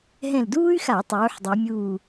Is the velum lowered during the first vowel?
yes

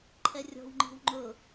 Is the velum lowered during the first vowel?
no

